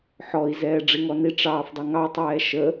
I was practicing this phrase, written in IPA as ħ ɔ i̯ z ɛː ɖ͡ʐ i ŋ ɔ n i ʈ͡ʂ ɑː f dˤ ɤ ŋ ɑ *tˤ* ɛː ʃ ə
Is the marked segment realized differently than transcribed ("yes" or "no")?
no